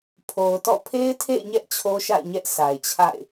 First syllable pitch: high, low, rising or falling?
low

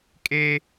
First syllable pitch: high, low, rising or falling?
high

